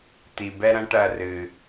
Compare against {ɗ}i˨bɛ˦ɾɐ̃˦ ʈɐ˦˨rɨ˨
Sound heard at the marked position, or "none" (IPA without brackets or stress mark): t̪